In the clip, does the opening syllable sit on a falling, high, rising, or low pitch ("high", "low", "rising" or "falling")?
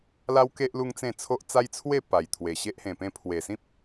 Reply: high